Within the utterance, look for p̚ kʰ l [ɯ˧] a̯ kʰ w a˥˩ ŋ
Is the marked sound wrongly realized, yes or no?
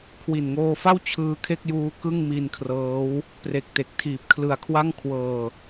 no